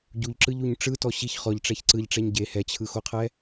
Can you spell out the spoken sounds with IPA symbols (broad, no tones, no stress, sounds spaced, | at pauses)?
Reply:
ɟ u ʎ ǁ ɯ ʎ u ɲ ʈ͡ʂ ɯ t ɔ ɕ i ç χ ɔ ʎ ʈ͡ʂ ɛ ç ǀ ɯ ʎ ʈ͡ʂ ɛ ɲ ɟ e h ɛ t͡ɕʰ ɯ x o qʰ ɛ